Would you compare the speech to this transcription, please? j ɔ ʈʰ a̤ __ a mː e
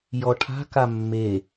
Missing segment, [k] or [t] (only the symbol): k